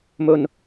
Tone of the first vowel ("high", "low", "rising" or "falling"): low